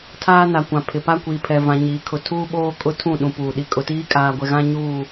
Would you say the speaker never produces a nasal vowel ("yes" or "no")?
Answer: no